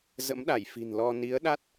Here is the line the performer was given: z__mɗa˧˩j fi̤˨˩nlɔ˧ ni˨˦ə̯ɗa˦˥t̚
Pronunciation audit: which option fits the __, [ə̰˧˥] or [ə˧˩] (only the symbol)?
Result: ə̰˧˥